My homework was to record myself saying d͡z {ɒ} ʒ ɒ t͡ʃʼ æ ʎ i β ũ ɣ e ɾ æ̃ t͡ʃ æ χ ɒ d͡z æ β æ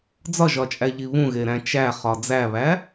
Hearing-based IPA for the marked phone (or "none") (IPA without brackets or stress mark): ɒ